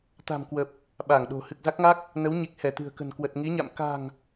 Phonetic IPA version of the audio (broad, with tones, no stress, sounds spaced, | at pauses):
t̪ a̤˨˩ m k w ə˨˩ p̚ | ɓ a˧˩ ŋ ɗ o̤˨˩ h ɨ˨˩ k̚ z a˦˥ k̚ ŋ a˦˥ k̚ | n ə˨˦ w ɲ i˨˩ k̚ h ɛ˧˩ t̪ ɨ̤˨˩ ə̯ k ə̤˨˩ n k w ə˨˩ t̚ ŋ i˨˦ ɲ a̰˧˨ m k a̤˨˩ ŋ